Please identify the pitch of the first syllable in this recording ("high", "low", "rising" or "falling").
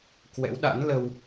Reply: rising